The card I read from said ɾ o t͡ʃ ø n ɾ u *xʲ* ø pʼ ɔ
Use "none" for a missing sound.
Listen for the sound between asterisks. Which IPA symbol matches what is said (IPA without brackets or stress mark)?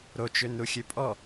xʲ